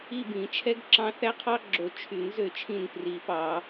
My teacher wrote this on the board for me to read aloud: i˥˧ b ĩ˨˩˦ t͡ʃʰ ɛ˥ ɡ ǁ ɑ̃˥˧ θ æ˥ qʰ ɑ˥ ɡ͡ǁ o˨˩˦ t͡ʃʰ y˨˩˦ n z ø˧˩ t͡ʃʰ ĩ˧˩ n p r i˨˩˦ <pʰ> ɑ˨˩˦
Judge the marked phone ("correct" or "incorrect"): incorrect